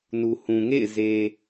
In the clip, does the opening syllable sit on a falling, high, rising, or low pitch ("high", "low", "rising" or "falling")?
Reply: low